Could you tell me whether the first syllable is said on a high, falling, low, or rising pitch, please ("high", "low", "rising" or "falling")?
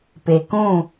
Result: low